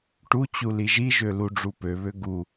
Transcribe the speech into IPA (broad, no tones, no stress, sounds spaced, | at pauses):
ʈ u t͡ɕ u l i ʒ i ʒ ø l u ɖ͡ʐ u p ø β ø ɡ u